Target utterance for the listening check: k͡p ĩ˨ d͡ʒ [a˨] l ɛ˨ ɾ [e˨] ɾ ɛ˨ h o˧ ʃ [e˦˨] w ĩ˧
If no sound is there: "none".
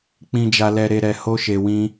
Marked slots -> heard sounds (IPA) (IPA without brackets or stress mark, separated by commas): a˨, e˨, e˨